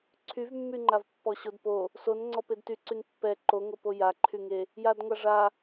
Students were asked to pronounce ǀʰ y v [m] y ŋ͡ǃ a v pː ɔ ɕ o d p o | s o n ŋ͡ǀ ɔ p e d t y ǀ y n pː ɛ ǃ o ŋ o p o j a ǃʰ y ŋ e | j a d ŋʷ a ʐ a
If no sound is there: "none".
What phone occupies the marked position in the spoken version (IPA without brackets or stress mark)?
mː